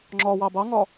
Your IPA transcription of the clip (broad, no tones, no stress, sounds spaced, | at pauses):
ŋ͡ǁ ɒ w ɑ b ɑ ŋ ɒ